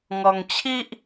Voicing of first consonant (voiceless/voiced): voiced